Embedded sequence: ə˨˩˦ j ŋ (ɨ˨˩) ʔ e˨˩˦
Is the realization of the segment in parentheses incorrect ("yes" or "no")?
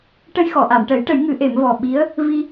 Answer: yes